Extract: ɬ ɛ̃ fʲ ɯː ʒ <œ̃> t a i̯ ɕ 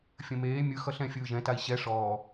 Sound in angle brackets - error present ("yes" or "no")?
yes